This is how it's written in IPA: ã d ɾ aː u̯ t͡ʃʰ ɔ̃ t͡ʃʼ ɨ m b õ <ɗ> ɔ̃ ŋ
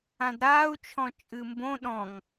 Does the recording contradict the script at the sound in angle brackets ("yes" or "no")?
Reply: no